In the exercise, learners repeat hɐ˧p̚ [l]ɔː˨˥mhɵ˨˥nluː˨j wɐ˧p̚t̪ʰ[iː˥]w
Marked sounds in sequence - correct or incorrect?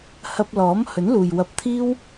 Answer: correct, correct

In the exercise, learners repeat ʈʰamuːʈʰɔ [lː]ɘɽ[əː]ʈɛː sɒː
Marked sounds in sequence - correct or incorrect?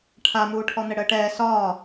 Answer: incorrect: n̪, correct

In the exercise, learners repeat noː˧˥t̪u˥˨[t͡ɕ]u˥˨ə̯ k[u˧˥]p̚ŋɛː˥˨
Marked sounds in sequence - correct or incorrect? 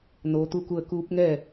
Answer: incorrect: k, incorrect: uː˧˥

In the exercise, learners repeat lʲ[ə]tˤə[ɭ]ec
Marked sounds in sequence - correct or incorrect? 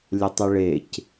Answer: correct, correct

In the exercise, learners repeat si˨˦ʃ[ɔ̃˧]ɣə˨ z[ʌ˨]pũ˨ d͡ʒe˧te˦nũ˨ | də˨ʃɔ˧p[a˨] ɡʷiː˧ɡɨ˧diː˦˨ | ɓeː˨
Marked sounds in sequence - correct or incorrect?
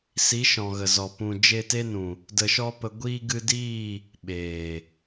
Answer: incorrect: ɔ̃˨, incorrect: ɔ˨, incorrect: ə˨

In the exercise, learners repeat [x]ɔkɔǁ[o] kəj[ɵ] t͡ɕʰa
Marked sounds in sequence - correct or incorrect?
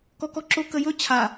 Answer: incorrect: k, correct, correct

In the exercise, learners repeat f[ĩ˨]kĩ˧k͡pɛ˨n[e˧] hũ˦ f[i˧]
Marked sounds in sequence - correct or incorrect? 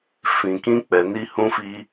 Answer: correct, incorrect: i˧, correct

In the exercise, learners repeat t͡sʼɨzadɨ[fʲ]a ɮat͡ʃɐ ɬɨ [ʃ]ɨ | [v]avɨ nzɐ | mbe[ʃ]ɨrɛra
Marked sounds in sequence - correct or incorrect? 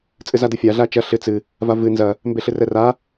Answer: correct, incorrect: t͡s, correct, incorrect: ɬ

